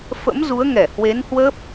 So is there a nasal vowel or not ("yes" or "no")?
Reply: no